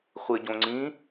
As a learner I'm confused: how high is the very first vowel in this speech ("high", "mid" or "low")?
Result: high